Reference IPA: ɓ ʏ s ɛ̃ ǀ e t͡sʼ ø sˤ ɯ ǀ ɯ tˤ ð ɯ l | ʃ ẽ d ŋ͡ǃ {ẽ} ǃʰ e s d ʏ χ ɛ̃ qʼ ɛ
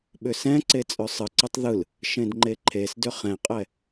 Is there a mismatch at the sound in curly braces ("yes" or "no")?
yes